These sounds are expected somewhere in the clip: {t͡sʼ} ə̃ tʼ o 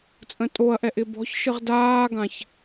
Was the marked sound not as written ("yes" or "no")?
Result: no